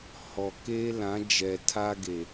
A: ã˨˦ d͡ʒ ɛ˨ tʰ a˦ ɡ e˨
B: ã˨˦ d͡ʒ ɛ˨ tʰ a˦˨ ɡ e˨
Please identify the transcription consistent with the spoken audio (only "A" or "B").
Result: A